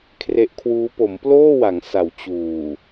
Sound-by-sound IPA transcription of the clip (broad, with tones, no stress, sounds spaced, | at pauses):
kʰ r e˦˥ ʔ kʰ w uː˦˥ p o˩˦ m p l oː˥˩ w a˩˦ ŋ s a˩˦ w t͡ɕ uː˨˩